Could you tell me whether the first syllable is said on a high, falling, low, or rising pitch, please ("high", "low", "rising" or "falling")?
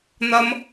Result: high